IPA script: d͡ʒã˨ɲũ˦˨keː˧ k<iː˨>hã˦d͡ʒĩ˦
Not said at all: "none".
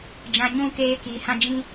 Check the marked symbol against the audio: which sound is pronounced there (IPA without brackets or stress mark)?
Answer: iː˨